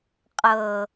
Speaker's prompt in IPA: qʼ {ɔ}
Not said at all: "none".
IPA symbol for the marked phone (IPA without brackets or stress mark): ɤ